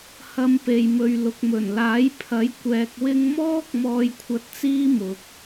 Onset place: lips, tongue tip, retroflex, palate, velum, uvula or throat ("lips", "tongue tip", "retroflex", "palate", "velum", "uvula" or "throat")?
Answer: throat